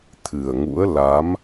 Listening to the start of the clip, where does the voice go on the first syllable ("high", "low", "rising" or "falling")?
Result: low